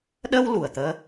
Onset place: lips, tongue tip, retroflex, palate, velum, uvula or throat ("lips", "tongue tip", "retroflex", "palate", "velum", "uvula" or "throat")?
tongue tip